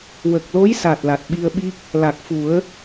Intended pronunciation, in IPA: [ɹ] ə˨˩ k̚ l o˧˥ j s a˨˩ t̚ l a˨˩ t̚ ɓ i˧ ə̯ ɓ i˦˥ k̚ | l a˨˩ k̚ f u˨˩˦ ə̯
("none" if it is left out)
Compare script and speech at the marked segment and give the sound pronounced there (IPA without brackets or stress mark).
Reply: w